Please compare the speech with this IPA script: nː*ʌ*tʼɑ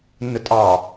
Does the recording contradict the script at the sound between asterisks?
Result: yes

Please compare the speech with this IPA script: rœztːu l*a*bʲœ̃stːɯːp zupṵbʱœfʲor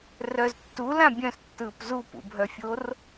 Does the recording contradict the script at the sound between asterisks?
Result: yes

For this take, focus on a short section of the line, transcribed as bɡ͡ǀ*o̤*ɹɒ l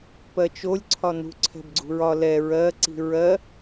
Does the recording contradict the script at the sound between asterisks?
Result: yes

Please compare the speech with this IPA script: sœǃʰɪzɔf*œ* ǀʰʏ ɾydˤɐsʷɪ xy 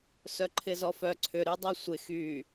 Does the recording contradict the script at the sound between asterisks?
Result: no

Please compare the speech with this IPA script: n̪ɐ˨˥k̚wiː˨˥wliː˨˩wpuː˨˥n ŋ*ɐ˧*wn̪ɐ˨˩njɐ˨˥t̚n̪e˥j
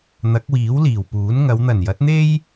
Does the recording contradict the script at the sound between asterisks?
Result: yes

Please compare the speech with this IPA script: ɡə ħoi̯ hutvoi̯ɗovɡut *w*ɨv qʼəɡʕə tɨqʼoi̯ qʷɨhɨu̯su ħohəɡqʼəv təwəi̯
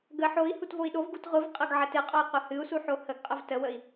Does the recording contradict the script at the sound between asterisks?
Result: yes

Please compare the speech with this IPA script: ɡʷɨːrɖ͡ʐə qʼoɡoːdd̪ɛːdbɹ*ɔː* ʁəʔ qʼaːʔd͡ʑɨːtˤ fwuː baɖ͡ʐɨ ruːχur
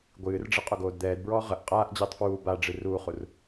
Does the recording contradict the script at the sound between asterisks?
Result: no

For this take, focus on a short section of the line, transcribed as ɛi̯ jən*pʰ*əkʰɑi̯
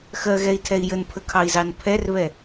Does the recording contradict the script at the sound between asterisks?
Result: no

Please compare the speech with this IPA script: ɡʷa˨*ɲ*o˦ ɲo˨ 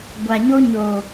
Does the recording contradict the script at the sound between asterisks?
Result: no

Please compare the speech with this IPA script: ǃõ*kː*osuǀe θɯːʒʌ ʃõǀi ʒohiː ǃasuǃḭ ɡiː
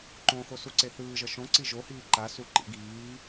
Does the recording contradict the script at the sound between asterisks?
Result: yes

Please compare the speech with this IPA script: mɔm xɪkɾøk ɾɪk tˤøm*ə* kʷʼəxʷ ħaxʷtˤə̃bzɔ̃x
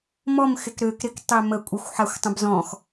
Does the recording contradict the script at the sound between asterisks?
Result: no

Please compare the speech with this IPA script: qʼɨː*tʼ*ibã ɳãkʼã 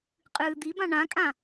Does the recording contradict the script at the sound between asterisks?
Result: yes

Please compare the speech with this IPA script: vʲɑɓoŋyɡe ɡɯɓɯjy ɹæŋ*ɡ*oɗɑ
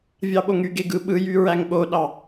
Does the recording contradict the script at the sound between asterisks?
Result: yes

